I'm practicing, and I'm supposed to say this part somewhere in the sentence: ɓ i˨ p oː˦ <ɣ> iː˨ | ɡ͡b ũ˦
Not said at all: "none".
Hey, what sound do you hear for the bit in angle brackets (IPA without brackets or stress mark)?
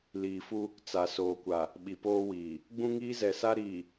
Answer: w